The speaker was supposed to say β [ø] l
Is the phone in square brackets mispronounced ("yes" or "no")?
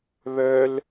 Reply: yes